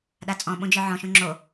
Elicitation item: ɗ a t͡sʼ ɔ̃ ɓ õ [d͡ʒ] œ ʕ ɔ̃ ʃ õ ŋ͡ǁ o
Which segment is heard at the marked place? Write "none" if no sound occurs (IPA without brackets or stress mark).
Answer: d͡ʒ